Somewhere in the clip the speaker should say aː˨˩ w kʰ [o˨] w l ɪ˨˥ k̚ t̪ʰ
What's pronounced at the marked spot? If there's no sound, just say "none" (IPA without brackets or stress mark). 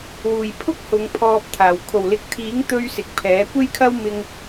o˨˩